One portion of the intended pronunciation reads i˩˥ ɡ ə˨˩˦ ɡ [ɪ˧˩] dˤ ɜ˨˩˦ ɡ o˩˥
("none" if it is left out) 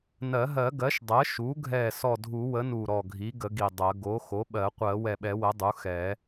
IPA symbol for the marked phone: i˧˩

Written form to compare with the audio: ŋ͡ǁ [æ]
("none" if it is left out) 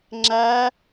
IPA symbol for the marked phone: æ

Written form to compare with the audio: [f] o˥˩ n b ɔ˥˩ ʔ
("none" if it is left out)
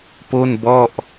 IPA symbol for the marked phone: p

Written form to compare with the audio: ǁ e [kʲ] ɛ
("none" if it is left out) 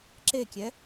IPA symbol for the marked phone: kʲ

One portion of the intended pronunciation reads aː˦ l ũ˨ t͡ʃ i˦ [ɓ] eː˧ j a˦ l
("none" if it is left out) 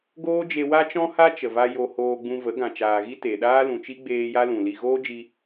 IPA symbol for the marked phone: ɡ͡b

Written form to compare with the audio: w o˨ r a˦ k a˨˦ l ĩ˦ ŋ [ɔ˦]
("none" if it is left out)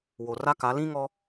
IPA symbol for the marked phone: ɔ˦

